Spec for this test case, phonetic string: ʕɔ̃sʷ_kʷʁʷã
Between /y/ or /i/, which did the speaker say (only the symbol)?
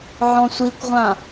i